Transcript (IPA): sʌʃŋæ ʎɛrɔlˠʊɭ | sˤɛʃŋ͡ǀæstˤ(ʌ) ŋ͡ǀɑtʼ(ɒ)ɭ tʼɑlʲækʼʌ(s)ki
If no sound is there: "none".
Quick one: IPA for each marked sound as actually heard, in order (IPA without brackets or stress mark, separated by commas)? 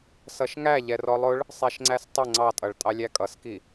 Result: ə, ʌ, s